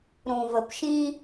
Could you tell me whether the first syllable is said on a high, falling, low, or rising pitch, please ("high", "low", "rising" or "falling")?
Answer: low